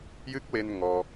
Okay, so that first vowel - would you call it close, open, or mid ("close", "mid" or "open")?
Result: close